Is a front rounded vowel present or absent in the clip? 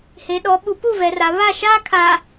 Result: absent